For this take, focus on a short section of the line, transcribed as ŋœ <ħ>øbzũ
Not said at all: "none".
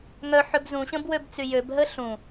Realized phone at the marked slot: ħ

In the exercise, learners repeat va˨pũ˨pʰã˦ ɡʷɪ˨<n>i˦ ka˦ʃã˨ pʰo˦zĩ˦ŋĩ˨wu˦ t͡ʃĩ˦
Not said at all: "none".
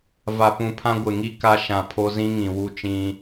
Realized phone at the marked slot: ŋ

